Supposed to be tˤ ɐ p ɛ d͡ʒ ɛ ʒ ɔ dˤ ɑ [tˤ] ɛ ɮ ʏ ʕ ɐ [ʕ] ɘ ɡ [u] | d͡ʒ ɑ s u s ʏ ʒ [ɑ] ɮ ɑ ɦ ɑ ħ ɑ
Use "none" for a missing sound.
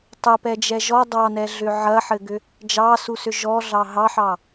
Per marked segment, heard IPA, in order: n, ħ, ʏ, ɔ

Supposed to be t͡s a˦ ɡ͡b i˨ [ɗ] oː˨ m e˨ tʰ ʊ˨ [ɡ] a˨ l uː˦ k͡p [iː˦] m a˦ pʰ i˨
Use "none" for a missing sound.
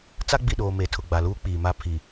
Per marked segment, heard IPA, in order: ɗ, ɡ͡b, iː˨

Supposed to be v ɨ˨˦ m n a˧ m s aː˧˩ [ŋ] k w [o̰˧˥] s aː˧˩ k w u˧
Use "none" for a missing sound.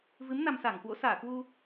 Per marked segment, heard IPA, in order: ŋ, o̰˧˥

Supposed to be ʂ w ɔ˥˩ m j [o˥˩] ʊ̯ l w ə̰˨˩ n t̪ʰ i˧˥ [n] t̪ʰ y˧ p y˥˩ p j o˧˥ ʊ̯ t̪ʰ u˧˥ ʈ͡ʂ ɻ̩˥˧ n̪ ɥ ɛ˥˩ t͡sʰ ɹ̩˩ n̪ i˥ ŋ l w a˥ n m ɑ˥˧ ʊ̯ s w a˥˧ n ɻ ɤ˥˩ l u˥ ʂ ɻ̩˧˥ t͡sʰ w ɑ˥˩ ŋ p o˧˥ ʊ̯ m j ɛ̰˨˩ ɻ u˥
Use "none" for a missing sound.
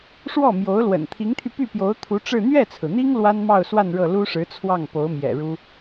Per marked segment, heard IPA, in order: o˧˥, ŋ

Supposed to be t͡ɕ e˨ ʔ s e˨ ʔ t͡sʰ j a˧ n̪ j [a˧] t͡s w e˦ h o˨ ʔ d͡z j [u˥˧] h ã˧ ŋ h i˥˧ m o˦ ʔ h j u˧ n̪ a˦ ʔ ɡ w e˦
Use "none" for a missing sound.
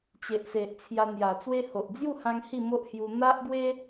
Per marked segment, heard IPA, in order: a˨˩, u˥˧

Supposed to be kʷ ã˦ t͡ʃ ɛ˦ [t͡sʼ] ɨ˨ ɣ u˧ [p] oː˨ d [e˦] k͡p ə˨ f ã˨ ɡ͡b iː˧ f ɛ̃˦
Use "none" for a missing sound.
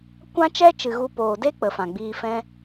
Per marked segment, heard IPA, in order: t͡ʃ, p, e˦

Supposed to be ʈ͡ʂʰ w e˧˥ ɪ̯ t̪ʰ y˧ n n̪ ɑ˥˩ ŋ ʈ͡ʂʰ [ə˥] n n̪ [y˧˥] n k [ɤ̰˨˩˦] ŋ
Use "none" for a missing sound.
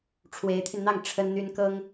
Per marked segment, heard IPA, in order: ə˥, y˥, ɤ˥

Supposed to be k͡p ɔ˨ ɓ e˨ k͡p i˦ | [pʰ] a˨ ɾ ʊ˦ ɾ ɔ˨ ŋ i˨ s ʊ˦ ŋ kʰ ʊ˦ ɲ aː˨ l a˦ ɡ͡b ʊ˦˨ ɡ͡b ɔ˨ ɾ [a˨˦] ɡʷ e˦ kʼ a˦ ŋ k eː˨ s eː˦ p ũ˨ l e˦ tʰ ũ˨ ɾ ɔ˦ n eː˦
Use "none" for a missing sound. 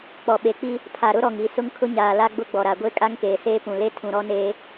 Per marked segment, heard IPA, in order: pʰ, a˨

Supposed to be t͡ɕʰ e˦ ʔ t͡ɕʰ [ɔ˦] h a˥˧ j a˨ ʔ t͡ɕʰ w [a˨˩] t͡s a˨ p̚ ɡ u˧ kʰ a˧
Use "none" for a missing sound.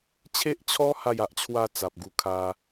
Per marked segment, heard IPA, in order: ɔ˦, a˥˧

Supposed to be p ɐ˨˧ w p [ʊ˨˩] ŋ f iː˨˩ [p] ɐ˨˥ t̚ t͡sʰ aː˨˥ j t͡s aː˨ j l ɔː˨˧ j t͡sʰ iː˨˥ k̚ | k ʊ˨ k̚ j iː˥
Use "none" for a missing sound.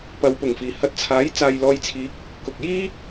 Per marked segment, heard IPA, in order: ʊ˨˩, h

